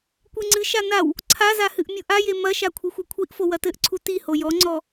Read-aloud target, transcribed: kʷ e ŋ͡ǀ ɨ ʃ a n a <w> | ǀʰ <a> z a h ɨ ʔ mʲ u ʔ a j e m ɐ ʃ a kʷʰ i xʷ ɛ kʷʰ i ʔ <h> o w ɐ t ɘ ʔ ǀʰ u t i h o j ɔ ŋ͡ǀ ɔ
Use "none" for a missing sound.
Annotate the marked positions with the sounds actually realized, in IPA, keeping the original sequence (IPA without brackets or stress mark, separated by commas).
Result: w, a, f